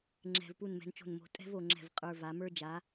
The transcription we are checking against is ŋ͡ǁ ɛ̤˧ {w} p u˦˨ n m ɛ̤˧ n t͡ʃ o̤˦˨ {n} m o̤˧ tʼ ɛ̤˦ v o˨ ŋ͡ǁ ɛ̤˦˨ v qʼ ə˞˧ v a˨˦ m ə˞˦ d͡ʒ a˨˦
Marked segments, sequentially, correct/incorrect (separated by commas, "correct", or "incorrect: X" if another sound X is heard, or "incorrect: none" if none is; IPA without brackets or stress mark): incorrect: v, correct